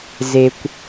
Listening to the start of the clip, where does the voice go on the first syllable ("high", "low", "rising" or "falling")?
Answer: low